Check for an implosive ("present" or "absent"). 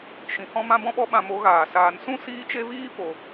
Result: present